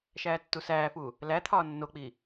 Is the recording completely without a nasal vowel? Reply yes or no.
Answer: yes